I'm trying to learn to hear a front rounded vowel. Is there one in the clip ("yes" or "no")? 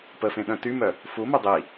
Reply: yes